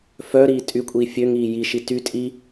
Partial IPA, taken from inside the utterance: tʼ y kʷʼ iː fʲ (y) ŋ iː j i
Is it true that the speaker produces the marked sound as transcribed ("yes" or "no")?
no